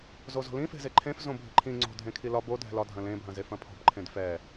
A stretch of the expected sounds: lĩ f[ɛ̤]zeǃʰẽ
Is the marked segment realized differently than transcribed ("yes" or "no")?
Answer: yes